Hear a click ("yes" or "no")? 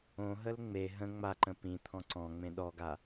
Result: yes